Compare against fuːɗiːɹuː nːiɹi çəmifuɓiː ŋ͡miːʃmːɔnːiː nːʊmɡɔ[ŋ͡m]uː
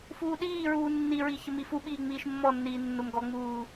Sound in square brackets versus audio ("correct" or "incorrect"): correct